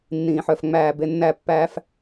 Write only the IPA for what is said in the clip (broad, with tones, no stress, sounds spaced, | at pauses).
nː ĩː˨ ħ œ˨ f ŋ͡m æː˨ b e˨ nː æ˨ pː æː˨ f